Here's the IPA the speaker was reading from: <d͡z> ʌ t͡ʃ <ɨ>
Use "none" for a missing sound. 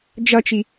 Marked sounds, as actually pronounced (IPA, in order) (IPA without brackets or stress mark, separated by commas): d͡ʒ, i